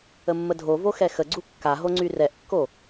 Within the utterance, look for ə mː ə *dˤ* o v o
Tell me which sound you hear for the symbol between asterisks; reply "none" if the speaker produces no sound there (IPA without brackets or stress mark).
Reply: dʱ